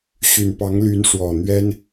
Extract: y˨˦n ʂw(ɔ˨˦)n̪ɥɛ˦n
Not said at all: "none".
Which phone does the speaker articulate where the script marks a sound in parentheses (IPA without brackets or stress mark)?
ɔ˨˩